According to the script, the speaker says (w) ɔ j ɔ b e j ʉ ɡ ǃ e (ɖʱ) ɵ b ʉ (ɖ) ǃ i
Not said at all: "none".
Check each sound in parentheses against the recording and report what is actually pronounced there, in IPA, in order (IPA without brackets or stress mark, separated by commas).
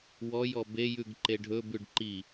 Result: w, ɖʱ, ɖ